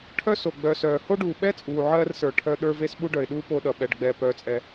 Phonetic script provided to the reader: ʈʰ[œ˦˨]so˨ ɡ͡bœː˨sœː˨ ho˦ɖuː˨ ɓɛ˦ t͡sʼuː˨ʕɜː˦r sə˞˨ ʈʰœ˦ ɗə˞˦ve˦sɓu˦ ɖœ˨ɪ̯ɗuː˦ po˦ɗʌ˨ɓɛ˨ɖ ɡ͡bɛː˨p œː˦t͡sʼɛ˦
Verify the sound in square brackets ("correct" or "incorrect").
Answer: incorrect